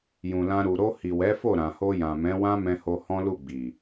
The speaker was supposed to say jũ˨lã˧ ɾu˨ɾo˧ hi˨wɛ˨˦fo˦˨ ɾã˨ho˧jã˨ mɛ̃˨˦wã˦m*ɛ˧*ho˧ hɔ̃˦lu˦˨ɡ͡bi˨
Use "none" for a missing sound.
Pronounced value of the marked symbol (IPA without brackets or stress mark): ɛ̃˧